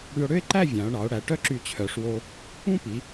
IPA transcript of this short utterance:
ɽ y˧ o̯ ɽ ø˥ e̯ ǃ æ˥˧ vʲ ɑ̃˩˧ o̯ ɳ ɑ˩˧ o̯ ɽ æ˩˧ ʈ œ˥ ǁ y˧˩ t͡ɕʰ œ˩˧ ʂ w o˧ | ũ˥ p i˩˧

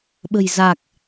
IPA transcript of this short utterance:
ɓ ə̤˨˩ j z aː˨˩ k̚

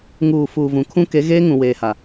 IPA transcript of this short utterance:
ŋ uː˨ f uː˨ v ũ˨ kʰ ũ˦ k e˨˦ ɣ eː˦ ŋ ũ˨ w eː˨ h a˨

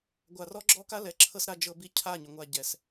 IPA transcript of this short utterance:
ɡʷ a˨ r ɔ˦ ɡ͡ǁ ɔ˦ k a˦ l ɛ˨ ǁʰ ɤ˦ s ɾ a˦ d͡ʒ ɤ˦ b i˦ cʰ a˦˨ ɲ ʏ˨ ŋʷ a˦˨ ɟ ɛ˨ s

